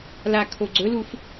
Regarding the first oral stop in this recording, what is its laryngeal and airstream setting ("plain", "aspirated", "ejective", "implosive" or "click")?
aspirated